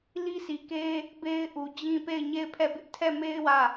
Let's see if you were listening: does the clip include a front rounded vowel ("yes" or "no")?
no